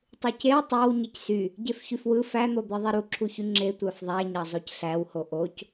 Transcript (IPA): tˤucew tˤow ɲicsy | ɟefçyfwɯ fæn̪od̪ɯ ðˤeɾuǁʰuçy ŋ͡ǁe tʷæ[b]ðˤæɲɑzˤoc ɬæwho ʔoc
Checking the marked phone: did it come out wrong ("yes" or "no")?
yes